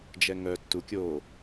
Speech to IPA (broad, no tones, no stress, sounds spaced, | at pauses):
d͡ʒ ɛ ŋ œ tː u kʲ o